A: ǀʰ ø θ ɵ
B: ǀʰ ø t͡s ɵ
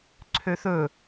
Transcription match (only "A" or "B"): A